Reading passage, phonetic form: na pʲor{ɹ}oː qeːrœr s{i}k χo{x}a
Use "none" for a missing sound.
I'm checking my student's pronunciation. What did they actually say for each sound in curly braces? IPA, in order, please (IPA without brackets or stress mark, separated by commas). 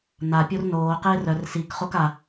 n, i, k